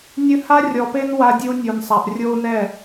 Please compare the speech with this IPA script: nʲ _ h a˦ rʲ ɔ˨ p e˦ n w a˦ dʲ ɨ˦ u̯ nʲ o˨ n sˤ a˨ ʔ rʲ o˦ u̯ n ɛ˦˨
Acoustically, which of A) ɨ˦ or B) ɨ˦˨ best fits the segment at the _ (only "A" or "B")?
A